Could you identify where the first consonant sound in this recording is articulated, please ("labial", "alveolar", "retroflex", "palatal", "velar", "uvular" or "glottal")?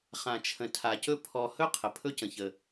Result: uvular